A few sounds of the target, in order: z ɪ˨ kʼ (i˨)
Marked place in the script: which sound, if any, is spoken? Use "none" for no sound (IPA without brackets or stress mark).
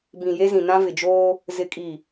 i˨